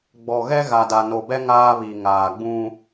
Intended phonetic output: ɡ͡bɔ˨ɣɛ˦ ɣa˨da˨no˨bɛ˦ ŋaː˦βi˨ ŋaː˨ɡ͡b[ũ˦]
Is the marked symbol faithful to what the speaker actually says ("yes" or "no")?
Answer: yes